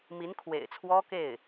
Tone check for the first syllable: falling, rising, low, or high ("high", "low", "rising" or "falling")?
rising